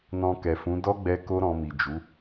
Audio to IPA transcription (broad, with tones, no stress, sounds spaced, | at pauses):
n ɔ̃˧ k ɛ˨ f ũ˨˦ d ɔ˦ ɡ͡b ɛ˧ k o˦ ɾ ɔ̃˧ m i˨ d͡ʒ u˨˦